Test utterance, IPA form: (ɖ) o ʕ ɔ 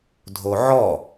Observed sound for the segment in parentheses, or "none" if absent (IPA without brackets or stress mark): dʱ